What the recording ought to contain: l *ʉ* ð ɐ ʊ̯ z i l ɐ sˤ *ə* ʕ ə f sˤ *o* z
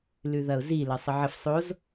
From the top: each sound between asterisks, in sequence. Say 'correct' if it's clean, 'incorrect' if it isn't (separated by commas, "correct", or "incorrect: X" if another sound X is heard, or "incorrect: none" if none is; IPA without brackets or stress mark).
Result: correct, correct, correct